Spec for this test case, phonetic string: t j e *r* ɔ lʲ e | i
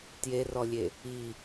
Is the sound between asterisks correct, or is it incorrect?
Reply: correct